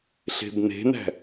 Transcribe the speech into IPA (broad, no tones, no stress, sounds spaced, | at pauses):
ɬ e̤ b n̪ e̤ n̪ æ̤